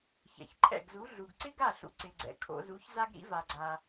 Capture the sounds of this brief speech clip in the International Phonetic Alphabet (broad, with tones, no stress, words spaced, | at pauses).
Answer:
çɛ̰˩çǃʰɛ̰˥˩ɡzu˩˥ ɮu˩ɡǀɪ˥ɡa˥˩ɬṵ˩ ǀɪ˩ɡ͡ǀɛ̰˩ kʰo̰˧zu˩˥çza˥ɡɾḭ˥ va˩ɡ͡ǀa˩